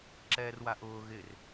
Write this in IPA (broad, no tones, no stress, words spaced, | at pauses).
ǁɛːrwaʔʊː ɣɪr